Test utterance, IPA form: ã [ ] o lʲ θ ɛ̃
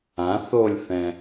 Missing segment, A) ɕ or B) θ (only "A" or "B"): B